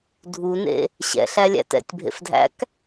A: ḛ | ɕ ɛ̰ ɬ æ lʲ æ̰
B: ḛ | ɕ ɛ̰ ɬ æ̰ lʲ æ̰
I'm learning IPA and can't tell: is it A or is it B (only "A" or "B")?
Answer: A